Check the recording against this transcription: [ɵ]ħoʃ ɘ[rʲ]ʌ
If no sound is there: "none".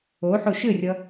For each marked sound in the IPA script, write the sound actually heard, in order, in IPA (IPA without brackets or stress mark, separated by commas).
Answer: o, rʲ